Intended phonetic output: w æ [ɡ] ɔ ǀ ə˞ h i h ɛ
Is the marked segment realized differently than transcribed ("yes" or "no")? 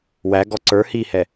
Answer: no